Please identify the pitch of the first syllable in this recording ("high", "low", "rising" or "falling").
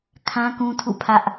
high